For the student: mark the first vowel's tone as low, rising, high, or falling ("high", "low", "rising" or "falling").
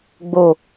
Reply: low